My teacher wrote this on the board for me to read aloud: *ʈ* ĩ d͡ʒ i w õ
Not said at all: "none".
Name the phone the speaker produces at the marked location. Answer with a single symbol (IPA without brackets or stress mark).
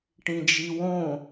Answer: ʈ